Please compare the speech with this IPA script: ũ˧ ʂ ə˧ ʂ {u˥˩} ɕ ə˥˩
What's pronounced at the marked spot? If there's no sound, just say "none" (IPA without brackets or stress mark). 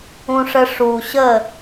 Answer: u˨˩